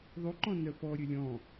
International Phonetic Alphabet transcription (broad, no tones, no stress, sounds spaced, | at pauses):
ðˤ ʉ ǃ ɔ̃ n œ p ɔ ɾʲ ɵ lʲ ɔ̃